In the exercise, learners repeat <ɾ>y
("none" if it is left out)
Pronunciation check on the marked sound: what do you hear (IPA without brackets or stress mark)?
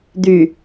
d̪